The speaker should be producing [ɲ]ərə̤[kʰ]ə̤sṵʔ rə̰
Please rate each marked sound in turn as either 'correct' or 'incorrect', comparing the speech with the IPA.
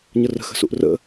correct, incorrect

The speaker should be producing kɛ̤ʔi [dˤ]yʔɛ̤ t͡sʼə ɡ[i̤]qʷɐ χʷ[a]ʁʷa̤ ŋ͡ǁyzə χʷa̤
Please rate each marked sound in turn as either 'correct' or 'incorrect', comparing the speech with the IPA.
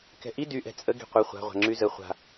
incorrect, correct, incorrect

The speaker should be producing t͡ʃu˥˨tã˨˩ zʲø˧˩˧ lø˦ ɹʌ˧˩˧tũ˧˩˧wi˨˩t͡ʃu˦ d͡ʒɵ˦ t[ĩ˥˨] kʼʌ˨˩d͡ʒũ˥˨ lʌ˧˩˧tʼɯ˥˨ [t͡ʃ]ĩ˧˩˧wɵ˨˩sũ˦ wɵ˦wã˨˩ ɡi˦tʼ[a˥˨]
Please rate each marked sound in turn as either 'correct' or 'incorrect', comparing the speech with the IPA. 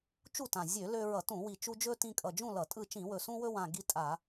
incorrect, correct, incorrect

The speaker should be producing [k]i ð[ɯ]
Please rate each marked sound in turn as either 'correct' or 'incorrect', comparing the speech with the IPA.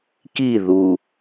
correct, incorrect

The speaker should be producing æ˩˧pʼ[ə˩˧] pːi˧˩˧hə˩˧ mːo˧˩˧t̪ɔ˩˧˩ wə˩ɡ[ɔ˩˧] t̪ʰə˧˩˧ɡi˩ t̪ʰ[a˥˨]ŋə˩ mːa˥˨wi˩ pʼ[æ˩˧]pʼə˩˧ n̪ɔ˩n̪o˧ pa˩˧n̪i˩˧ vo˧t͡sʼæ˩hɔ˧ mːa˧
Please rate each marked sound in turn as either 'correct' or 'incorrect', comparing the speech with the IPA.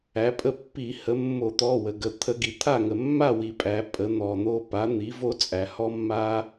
incorrect, incorrect, correct, correct

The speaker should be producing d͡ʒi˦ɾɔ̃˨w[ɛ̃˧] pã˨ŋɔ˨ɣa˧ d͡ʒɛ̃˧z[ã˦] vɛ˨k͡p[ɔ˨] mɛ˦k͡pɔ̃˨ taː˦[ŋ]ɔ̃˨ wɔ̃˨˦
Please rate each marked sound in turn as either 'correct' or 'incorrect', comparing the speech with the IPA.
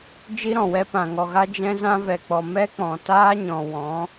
incorrect, incorrect, correct, incorrect

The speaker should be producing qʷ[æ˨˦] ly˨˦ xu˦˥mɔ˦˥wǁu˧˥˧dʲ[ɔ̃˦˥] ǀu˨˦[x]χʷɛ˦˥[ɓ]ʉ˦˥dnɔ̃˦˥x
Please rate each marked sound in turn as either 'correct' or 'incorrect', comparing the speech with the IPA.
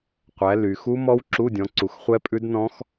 correct, incorrect, correct, incorrect

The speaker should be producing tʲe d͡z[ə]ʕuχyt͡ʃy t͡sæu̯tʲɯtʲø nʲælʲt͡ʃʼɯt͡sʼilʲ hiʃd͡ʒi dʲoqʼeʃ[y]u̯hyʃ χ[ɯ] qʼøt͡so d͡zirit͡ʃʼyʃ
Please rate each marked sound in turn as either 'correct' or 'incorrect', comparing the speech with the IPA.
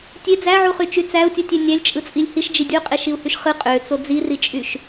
incorrect, incorrect, correct

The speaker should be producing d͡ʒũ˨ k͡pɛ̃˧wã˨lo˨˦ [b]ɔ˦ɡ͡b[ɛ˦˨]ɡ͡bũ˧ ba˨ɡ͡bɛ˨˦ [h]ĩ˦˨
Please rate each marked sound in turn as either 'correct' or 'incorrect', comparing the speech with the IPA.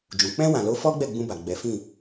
incorrect, correct, incorrect

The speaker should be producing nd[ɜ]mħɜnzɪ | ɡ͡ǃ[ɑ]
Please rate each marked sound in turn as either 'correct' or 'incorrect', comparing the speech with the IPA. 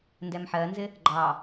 incorrect, correct

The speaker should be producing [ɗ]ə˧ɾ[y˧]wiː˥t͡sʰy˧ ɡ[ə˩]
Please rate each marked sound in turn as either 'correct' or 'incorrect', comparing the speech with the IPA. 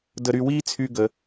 incorrect, correct, correct

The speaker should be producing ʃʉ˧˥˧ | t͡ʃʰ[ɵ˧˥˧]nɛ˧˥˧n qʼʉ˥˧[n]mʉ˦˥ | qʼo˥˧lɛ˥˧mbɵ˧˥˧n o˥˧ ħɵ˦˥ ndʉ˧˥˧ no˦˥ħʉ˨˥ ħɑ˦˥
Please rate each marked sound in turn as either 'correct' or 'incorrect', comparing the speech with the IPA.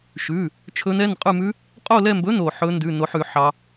incorrect, incorrect

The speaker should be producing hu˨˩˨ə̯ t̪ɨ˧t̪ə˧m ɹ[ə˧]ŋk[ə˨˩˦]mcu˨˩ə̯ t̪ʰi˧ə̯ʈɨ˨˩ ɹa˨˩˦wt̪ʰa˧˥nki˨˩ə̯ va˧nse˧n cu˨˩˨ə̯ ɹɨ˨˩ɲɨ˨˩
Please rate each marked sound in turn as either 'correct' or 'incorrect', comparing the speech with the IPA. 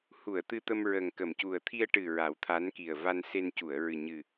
incorrect, incorrect

